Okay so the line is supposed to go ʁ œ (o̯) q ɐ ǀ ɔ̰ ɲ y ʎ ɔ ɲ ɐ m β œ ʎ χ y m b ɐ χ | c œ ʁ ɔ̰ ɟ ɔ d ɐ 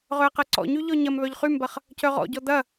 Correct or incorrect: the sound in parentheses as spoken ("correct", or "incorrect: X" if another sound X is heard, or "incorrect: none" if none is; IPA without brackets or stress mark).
incorrect: ɐ̯